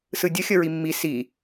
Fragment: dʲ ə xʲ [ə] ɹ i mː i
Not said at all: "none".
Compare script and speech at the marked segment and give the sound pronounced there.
ə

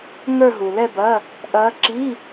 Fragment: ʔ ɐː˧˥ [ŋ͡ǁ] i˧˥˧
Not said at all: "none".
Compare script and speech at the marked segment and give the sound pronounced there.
ǁ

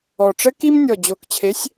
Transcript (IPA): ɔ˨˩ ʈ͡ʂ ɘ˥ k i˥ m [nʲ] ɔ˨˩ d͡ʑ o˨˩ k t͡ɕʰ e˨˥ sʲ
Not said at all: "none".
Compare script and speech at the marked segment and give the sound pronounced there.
nʲ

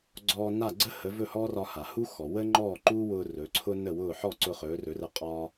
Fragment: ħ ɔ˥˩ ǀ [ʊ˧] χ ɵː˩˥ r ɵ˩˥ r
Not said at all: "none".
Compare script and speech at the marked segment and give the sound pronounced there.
ʊ˧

